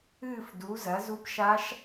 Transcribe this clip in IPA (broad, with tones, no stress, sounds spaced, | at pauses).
ɨː˥˨ f d u˩˥ z ɐ˩˥ z u˧˥ p ʃ a˧˥ ʃ